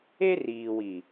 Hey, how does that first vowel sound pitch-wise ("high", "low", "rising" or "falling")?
high